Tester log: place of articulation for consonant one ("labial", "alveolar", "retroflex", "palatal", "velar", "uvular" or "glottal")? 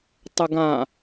alveolar